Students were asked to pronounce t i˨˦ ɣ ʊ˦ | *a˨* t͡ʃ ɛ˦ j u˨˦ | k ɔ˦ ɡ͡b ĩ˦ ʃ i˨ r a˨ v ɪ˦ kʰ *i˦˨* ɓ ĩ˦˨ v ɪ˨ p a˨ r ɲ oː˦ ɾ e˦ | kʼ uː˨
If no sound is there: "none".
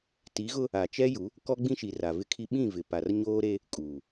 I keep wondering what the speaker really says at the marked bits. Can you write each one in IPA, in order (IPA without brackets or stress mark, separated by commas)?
a˨, i˦